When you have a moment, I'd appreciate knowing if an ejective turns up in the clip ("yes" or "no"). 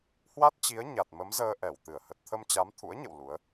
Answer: no